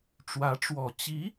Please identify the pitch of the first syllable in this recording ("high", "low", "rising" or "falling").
rising